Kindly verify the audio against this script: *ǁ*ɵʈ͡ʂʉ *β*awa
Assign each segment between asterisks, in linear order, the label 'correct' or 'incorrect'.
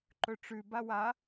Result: incorrect, incorrect

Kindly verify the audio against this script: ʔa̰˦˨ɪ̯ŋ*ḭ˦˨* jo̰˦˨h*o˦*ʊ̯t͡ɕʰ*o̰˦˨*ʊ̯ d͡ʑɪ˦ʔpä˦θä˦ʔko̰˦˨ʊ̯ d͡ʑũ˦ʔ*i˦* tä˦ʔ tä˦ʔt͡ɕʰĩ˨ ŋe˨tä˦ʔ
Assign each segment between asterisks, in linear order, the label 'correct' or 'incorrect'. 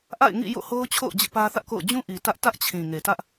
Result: correct, correct, correct, incorrect

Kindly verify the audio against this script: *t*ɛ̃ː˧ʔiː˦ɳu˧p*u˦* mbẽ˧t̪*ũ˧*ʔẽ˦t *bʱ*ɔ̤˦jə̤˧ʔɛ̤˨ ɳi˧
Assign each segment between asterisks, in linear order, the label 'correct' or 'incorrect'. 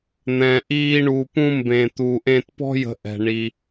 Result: incorrect, incorrect, incorrect, incorrect

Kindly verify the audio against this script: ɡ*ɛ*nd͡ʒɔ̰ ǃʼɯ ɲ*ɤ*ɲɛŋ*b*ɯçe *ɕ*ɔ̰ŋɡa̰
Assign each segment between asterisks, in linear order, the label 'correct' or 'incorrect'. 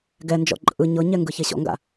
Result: correct, correct, incorrect, correct

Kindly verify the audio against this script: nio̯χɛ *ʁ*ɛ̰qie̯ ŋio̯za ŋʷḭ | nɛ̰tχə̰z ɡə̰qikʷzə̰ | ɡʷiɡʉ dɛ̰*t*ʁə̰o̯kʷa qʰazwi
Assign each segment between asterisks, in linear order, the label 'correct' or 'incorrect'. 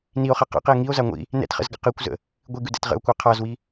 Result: incorrect, correct

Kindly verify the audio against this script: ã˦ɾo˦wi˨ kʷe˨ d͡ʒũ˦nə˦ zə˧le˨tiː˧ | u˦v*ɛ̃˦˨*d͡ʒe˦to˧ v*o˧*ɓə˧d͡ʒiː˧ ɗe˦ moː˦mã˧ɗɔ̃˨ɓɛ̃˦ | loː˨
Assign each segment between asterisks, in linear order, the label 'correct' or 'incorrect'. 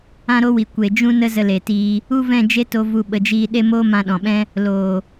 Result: correct, incorrect

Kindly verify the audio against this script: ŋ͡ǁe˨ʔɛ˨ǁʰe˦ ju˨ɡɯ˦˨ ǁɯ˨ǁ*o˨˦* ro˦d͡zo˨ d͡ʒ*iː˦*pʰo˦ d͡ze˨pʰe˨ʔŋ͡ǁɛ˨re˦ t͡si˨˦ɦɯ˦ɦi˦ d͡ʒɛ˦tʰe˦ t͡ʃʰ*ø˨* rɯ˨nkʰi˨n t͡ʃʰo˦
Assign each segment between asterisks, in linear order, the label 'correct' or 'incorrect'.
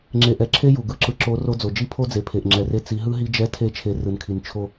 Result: correct, incorrect, incorrect

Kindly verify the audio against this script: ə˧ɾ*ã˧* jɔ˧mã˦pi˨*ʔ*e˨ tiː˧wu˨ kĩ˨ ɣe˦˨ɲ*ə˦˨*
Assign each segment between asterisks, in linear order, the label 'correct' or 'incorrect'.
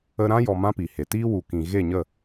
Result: incorrect, incorrect, correct

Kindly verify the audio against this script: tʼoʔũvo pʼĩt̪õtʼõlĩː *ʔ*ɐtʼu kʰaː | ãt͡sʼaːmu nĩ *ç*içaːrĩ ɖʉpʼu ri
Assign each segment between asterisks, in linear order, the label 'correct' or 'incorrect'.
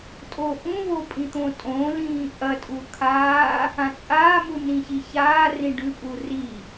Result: correct, correct

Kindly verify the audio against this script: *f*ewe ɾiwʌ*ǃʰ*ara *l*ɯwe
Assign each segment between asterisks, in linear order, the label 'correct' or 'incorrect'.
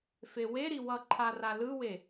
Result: correct, correct, correct

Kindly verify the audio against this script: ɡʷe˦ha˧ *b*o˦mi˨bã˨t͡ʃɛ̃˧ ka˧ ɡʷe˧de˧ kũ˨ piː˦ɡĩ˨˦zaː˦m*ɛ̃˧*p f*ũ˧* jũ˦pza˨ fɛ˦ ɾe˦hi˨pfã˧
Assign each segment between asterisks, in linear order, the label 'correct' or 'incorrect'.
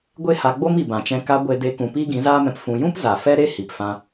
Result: incorrect, correct, correct

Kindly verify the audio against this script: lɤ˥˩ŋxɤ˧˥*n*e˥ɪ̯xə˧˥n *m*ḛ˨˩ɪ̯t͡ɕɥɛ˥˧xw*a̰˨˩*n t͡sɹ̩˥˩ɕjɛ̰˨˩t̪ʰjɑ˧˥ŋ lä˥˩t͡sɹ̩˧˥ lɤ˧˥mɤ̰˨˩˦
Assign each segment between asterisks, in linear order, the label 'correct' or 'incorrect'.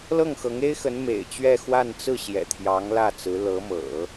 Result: incorrect, correct, incorrect

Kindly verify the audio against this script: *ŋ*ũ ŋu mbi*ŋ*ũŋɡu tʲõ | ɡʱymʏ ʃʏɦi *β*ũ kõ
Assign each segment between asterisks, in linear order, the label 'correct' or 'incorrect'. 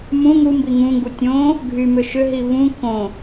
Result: incorrect, correct, correct

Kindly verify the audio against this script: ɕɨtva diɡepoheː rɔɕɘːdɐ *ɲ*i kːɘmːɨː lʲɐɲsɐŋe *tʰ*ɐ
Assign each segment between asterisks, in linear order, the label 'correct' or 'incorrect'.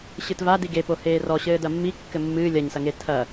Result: incorrect, correct

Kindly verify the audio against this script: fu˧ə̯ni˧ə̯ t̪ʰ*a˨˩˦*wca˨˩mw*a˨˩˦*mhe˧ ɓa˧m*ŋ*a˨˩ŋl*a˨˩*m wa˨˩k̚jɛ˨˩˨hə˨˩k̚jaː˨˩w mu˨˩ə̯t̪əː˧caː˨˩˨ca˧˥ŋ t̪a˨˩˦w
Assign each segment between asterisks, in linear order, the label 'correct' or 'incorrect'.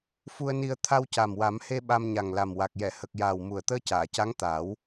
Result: incorrect, correct, incorrect, correct

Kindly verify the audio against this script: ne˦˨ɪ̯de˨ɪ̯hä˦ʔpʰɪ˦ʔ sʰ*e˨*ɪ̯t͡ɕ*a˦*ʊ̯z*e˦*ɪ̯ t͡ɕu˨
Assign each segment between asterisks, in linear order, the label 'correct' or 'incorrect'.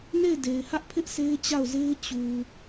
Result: incorrect, incorrect, correct

